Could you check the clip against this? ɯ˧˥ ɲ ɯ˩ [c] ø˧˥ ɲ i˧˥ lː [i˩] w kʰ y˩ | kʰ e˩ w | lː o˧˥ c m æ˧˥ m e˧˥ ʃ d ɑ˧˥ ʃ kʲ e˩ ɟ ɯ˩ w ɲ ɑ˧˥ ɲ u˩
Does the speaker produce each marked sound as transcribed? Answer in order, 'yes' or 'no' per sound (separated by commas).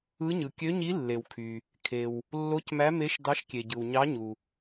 no, no